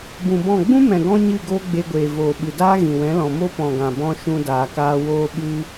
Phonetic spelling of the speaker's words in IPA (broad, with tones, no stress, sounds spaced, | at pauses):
b ũ˨ b ɔ̃˦˨ ɡ͡b ũ˦ m ɛ̃˨ ɡ ɔ̃˦ ɲ ɨ˦˨ ɡ oː˦ ɡ͡b e˧ ɡʷ eː˨ v oː˨ ɓ ɨ˨ d aː˦ ɣ ĩ˨ w ɛ̃˨˦ l ɔ̃˨ m o˦ p ɔ̃˨ ɡ ã˨ b ɔ̃˧ ʃ ũ˧ d aː˨ k aː˧ w oː˧ ɓ ɨ˧